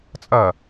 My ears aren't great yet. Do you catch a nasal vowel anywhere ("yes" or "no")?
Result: no